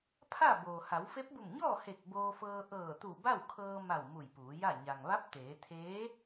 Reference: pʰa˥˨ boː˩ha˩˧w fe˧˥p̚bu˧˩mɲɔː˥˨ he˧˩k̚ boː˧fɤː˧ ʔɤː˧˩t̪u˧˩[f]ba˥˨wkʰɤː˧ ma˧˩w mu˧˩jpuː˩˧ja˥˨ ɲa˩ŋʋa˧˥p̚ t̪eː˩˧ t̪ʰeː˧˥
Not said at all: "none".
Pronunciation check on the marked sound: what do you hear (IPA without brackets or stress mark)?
none